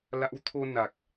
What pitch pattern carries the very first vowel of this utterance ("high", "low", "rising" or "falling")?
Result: rising